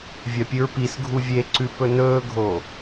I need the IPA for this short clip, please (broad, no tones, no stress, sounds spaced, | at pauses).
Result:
vʲ ɐ pʲ ɨ ɹ p i s ɡʱ u vʲ e ǀ ʉ p ɵ n ɵː ɡʱ o